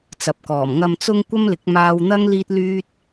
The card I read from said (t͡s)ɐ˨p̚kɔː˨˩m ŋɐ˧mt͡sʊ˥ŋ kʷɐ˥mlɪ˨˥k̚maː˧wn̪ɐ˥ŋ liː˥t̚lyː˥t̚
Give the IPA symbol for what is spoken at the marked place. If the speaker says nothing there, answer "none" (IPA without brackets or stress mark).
t͡s